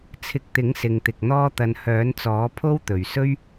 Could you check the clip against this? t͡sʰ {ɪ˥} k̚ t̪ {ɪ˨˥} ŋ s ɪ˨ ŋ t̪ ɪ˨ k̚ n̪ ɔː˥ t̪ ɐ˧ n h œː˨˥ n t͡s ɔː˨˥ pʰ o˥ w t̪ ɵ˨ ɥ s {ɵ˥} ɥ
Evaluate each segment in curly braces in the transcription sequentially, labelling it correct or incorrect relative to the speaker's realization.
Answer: incorrect: ɪ˧, correct, correct

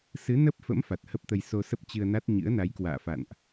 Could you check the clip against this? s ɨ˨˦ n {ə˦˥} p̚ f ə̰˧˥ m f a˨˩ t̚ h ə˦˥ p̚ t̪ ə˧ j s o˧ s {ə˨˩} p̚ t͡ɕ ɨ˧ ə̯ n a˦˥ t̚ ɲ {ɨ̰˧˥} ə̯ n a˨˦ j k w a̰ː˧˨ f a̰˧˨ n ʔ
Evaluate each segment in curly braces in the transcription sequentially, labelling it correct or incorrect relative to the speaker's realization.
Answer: correct, incorrect: ə˦˥, correct

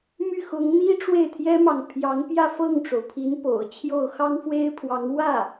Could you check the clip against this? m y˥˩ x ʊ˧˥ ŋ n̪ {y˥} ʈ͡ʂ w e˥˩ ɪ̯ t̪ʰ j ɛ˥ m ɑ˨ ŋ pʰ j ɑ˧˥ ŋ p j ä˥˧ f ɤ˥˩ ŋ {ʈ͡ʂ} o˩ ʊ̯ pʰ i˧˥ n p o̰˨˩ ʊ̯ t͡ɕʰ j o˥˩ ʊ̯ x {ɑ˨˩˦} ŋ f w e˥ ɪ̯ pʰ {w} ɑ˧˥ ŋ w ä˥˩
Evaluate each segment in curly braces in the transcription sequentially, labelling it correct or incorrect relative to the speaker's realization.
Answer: incorrect: i˥, correct, incorrect: ɑ˥, correct

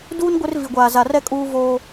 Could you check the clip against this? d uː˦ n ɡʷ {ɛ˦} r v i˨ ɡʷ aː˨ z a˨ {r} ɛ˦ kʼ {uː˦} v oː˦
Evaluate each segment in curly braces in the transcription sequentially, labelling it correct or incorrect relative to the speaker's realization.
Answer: incorrect: ɪ˦, correct, correct

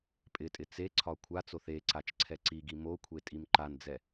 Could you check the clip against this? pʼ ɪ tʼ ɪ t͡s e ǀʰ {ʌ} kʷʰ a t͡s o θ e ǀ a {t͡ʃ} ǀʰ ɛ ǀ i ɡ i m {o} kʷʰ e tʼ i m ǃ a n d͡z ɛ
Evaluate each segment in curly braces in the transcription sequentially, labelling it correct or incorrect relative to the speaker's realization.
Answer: incorrect: ɒ, correct, correct

